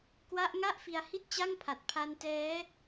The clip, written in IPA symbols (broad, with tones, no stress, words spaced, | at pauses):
kwa˦˥ʔŋa˥˩ʔ fi˧a̯hi˥˩t̚t͡ɕa˥˩ŋpʰa˨˩t̚ pʰa˧ntɛː˦˥